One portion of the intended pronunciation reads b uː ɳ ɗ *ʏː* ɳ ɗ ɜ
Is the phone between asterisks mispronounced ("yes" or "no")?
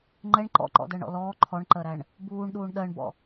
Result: yes